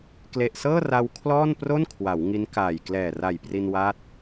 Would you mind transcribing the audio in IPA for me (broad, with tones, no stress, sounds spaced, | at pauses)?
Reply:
k l e˨˩ ʔ s ɤː˥˩ r a˧ w kʰ l ɔː˥˩ n p r o˥˩ n kʰ w a˩˦ w ŋ i˦˥ n k aː˨˩ j k l ɛː˨˩ r a˨˩ j p r i˧ n w a˦˥ t̚